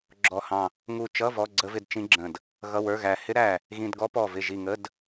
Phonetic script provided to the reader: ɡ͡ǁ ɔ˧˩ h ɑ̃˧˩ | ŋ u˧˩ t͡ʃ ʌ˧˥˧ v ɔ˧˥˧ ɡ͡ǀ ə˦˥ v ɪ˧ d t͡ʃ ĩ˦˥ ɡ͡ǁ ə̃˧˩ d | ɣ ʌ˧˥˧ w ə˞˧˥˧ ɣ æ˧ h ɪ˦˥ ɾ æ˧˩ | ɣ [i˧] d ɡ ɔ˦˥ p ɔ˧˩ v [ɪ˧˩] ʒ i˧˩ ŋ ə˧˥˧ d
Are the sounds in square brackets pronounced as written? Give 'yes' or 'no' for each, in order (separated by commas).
no, yes